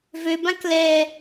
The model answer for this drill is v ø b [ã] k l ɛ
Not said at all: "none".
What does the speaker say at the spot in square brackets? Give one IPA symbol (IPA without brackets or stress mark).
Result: ã